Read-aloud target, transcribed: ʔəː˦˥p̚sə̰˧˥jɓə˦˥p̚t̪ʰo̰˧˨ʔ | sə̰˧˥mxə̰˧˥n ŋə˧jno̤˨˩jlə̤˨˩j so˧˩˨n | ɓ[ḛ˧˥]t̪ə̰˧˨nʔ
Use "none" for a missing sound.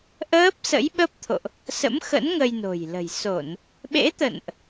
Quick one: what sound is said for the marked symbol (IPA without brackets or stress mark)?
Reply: ḛ˧˥